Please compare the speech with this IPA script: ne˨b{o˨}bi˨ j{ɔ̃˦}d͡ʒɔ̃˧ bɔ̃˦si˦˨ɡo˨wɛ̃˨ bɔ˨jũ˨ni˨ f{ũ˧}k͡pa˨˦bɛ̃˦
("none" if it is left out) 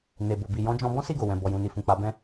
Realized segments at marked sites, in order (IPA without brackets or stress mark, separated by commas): o˨, ɔ̃˨˦, ũ˨